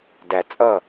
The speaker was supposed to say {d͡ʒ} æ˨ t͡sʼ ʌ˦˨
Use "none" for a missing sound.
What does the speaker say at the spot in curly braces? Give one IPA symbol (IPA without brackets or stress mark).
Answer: d